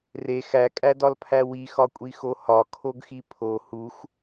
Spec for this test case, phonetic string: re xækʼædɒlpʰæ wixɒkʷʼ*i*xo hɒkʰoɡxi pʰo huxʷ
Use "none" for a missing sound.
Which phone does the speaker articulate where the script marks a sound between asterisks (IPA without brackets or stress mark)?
i